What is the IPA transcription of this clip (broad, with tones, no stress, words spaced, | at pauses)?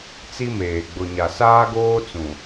t͡si˦meː˨ ɡ͡bʊ˨ɲa˨ saː˦ɡoː˦ t͡sũ˨